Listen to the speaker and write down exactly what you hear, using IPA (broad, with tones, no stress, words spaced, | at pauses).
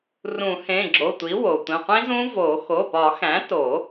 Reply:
rũ˨˩˦ hẽ˩˧˩ɡ͡ǁo˩˧˩tʷi˩˥ wo˩tʷĩ˩˧˩qʷĩ˦˥zũ˦˥ vo˨˩˦ xo˩˧˩pɒ˨˩˦xæ̃˩˥to˨˩˦